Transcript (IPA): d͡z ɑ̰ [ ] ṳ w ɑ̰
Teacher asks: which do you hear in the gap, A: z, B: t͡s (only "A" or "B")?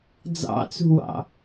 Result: B